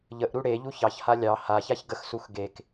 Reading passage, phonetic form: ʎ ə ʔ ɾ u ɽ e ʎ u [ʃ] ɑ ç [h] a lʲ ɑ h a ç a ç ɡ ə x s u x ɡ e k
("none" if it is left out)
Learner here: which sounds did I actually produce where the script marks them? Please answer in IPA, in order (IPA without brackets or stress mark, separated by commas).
ç, h